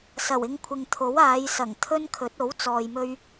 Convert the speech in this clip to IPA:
s ɐ˨˩ w ɪ˧ ŋ kʷʰ ɪ˨ ŋ t̪ʰ o˨˥ w aː˨˧ j s ɐ˨˩ ŋ t̪ʰ ɵ˥ n kʰ ɵ˨˥ t̚ o˨˥ w t͡s ɔː˨ j m ɵ˧ ɥ

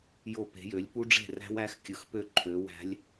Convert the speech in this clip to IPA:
j o˥˩ p e̤˨˥ j ø˨˥ lʲ p u˦˥ ɖ͡ʐ e̤˥˩ r æ̤˦˥ w æ˦˥ x kʲ ɯ˨˥ x p ø˥˩ ǃʰ ø˨˥ w æ̤˦˥ lʲ

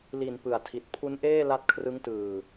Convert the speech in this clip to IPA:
l i˨˩ n p ɯ˨˩ a̯ tʰ i˨˩ t̚ pʰ u˦˥ n ʔ eː˥˩ l a˦˥ t̚ kʰ r ɯ˦˥ ŋ t ɯː˨˩

